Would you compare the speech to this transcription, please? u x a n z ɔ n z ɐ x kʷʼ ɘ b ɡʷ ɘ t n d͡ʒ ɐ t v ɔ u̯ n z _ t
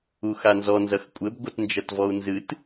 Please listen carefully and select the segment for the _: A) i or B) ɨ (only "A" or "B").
B